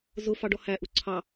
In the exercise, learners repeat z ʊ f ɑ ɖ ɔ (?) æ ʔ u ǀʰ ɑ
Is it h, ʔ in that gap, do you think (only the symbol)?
h